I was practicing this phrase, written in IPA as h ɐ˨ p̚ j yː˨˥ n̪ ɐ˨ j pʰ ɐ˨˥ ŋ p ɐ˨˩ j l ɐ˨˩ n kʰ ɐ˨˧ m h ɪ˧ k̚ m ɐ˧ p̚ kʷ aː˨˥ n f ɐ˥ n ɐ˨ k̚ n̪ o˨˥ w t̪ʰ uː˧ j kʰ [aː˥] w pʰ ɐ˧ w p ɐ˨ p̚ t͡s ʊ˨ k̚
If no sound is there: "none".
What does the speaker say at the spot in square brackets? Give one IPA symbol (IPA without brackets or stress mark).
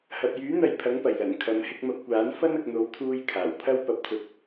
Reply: aː˨˩